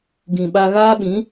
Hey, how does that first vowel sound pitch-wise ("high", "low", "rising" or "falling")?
low